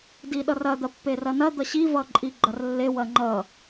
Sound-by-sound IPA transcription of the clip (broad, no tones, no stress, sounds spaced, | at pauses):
d i ɗ ʌ r ɐ d̪ ɐ pː e r ɐ n ɐ d̪ ʌ ɕ i v ʌ ǃʼ i ɡ͡ǃ ɐ r lː e w ɐ ŋ͡ǃ ʌ